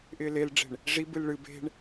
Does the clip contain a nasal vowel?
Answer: no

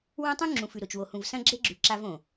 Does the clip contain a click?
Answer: yes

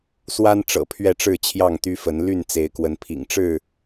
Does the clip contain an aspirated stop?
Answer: yes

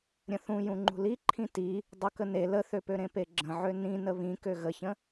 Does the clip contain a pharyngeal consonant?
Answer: yes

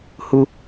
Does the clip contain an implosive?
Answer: no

